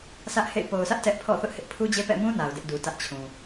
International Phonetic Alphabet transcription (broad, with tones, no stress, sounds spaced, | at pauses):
s ä˦ ʔ h ḛ˦˨ ɪ̯ p o˨ ʊ̯ sʰ ä˦ ʔ t ɛ˦ ʔ pʰ ɔ̰˦˨ θ ʊ˦ ʔ h ɪ˦ ʔ pʰ u˦ d͡ʑ e˦ p ɛ̰˦˨ m ũ˦ n a˨ ʊ̯ d ɪ˦ ʔ d u˨ t ä˦ ʔ t͡ɕʰ ũ˨